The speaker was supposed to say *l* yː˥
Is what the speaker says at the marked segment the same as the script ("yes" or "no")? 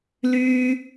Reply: yes